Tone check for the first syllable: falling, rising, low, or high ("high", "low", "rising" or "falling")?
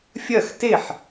falling